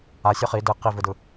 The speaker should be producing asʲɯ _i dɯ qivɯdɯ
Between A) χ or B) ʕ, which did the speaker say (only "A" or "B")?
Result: A